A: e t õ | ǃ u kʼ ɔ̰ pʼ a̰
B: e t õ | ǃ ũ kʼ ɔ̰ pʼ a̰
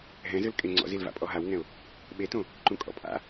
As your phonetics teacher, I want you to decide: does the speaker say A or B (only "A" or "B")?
B